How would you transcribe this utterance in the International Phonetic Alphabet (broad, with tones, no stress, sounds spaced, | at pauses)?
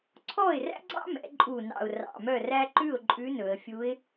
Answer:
ǀʰ ɔ˥˩ ɪ̯ r æ̰˥ ɡ͡ǀ ɑ̰˥ m ɛ̰˩˧ ǃʼ u˨˩ n ɑ̰˨˩ ʊ̯ r ɑ̰˨˩ m œ˥˩ r æ˥ ǃ ʉ˥˩ ʊ̯ ǃʼ ʉ˧˥ n ɵ˩˧ ə̯ fʲ u˧˥ ɪ̯